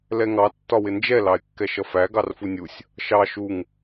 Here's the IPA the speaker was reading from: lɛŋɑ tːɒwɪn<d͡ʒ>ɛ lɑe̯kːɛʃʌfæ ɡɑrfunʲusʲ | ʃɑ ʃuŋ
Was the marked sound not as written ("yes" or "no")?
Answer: no